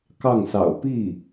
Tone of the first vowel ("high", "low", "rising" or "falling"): falling